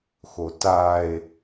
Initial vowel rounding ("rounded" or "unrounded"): rounded